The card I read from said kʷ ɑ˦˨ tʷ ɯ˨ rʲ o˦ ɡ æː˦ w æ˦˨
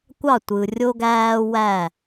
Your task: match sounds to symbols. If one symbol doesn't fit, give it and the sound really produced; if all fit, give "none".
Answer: none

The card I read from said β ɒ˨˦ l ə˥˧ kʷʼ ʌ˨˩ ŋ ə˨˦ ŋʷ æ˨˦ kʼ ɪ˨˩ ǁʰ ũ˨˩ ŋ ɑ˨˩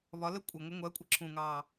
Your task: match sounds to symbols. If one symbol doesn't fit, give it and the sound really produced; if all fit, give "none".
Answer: kʼ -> kʷʼ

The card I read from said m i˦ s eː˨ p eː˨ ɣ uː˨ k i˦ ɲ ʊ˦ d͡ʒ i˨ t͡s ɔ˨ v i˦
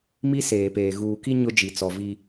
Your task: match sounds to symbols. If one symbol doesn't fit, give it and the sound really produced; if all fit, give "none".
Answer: none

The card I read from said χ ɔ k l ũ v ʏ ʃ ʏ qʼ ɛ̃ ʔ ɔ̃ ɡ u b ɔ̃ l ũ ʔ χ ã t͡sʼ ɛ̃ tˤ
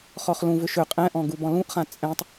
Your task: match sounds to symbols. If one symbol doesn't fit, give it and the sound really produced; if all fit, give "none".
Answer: k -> χ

